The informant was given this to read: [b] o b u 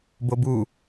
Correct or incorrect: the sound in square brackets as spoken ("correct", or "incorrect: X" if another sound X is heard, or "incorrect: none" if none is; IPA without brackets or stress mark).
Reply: correct